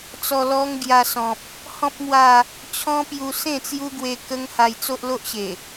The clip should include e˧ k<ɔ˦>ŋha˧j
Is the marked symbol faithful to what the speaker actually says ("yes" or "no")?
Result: no